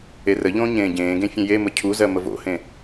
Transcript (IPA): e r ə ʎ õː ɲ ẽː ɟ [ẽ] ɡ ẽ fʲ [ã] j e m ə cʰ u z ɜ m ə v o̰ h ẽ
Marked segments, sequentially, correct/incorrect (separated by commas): incorrect, incorrect